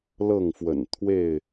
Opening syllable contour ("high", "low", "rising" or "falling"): falling